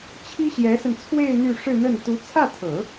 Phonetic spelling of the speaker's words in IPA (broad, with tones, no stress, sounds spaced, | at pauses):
t͡ɕʰ i˥ ɕ j ɛ˧˥ s ə˧ n t͡sʰ w e˥˧ ɪ̯ n̪ y˥˧ ʂ ɻ̩˥˧ n̪ ə˥˩ n t̪ u˧˥ t͡sʰ ä˥˩ t̪ʰ ɤ˨˩˦